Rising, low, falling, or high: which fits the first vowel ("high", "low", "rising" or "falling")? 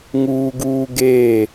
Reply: high